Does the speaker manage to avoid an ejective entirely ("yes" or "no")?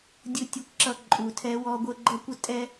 no